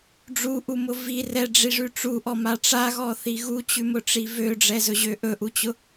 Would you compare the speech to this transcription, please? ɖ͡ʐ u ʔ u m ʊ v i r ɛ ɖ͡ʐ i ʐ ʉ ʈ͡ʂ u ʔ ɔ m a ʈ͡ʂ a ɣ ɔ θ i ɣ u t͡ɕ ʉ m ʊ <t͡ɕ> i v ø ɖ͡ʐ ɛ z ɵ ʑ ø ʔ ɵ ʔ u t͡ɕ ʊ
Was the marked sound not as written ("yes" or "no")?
yes